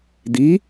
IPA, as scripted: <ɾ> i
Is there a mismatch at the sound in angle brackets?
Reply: yes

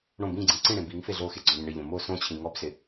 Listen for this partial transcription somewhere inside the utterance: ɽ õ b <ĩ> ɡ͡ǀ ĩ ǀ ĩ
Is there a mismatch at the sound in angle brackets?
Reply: no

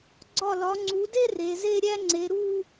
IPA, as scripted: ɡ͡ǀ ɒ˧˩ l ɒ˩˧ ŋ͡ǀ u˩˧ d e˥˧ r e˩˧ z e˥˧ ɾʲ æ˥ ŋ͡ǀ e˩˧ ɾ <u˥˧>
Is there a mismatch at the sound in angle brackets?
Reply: no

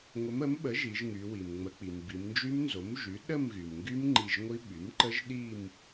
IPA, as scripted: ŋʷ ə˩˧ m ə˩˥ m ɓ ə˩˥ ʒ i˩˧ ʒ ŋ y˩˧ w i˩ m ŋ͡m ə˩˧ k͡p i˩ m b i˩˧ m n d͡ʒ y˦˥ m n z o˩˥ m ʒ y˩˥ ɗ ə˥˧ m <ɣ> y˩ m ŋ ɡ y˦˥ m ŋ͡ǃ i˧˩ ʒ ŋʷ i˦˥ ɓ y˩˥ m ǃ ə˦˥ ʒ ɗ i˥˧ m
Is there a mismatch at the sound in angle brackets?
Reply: no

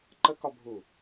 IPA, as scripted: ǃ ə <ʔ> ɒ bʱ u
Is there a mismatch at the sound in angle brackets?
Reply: yes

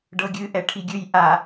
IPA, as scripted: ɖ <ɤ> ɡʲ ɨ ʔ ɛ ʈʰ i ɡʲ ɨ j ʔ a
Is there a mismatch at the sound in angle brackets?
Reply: no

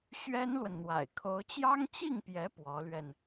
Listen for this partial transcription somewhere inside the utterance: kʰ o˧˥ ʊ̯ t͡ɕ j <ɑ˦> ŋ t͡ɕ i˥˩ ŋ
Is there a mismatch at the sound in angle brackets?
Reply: yes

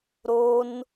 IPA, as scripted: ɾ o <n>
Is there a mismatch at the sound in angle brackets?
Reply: no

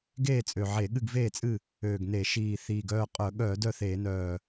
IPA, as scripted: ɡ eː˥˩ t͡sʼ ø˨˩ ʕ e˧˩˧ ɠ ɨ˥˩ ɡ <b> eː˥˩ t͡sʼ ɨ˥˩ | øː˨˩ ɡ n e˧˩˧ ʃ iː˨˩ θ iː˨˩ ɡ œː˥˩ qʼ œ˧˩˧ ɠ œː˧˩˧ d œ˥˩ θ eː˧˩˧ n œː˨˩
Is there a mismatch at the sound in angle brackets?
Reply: yes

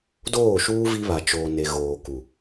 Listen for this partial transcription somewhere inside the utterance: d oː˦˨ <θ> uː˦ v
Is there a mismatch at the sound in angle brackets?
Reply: yes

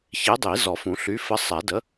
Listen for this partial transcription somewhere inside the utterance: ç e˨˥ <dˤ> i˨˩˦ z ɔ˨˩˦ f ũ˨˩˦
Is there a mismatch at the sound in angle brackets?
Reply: no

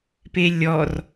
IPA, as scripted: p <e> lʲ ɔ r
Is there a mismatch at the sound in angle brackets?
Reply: no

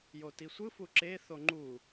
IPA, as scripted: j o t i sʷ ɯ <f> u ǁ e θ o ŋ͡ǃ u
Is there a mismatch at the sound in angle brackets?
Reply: no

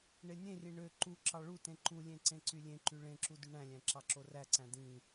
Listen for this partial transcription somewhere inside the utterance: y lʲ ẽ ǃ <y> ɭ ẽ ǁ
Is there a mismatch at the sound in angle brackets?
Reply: no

